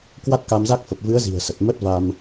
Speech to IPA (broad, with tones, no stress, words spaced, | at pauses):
kwa˦˥t̚ka˧mza˦˥k̚ fə˨˩p̚vɨ˨˦ə̯zi̤˨˩ə̯sə˨˩t̚ mə˦˥t̚va˧m